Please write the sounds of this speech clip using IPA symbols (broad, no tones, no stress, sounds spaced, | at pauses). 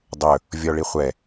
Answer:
dˤ ɵ | vʲ ɔ ɭ i χʷ ɛ